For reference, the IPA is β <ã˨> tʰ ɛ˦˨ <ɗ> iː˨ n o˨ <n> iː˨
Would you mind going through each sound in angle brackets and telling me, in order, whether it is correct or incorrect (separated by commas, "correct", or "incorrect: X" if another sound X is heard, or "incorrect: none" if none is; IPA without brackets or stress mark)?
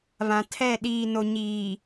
correct, correct, incorrect: ɲ